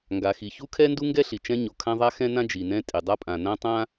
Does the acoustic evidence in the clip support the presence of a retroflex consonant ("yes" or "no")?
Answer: no